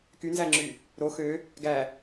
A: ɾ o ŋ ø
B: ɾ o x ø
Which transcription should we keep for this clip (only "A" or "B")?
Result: B